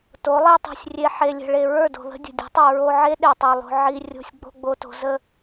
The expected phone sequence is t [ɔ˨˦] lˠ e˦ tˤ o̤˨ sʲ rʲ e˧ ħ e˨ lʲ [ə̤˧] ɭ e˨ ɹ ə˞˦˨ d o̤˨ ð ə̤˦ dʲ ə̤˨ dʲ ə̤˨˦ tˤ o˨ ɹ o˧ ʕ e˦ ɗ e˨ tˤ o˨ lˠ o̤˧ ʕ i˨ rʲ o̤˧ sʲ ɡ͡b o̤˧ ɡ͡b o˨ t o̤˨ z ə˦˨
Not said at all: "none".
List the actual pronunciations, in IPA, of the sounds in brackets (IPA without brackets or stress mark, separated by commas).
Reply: o˨˦, ə̤˨